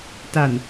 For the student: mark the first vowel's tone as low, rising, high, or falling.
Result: low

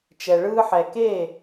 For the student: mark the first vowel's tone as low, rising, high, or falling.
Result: low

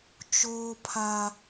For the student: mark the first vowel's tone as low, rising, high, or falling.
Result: high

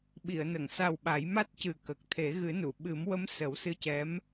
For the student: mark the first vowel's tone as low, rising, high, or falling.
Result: low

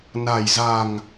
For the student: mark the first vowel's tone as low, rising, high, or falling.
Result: low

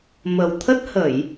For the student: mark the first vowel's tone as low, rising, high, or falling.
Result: low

